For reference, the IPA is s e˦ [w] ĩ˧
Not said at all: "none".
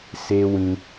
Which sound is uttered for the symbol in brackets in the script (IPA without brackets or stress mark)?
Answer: w